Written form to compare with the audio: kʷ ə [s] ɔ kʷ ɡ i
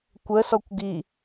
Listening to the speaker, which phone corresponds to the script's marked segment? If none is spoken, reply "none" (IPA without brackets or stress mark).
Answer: s